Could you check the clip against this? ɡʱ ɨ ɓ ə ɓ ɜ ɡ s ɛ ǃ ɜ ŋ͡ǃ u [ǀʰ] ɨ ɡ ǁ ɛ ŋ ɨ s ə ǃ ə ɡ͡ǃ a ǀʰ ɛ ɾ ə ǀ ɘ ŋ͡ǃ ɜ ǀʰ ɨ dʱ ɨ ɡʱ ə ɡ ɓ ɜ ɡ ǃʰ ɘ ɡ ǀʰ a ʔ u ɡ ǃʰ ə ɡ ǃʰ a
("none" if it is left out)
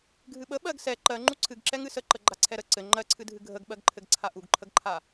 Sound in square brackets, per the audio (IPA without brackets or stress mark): ǀʰ